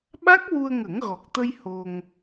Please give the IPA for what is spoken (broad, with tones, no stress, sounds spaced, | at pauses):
ɓ a˦˥ k̚ w u˧ ə̯ ŋ ə˨˩˦ ŋ ɣ ɔ˨˩ k̚ t̪ ə˧ j h o˧ ŋ